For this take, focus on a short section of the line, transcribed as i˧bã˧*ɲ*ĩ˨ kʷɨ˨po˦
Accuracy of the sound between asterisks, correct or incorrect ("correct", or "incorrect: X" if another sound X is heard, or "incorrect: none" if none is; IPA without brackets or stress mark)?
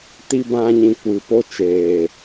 correct